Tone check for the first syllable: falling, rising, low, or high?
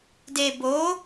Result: low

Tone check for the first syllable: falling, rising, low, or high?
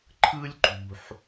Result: high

